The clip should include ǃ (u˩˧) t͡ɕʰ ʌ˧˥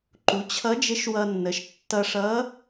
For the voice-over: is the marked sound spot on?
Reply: yes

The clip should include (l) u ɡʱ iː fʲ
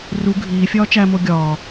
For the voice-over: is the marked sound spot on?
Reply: no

